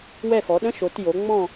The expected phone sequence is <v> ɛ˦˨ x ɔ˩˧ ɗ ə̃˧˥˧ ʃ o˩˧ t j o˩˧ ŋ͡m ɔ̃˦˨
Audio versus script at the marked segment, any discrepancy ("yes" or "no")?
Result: yes